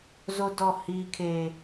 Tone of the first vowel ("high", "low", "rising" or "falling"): high